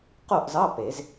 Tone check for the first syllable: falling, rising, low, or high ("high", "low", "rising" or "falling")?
falling